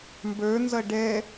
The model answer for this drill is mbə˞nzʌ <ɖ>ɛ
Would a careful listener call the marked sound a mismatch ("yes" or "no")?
no